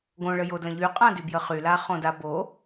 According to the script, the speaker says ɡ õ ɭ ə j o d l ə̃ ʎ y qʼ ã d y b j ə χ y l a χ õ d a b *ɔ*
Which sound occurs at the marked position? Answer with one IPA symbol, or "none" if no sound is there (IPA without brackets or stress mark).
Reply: o